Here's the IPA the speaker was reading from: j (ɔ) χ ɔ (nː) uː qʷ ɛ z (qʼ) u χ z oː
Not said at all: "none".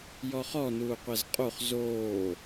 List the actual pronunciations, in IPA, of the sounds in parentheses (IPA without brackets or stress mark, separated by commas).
ɔ, n, qʼ